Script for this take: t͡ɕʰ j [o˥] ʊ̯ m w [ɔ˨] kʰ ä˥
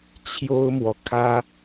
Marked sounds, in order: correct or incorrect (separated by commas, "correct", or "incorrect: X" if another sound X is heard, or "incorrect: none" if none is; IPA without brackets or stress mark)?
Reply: correct, correct